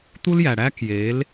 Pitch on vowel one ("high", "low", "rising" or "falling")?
high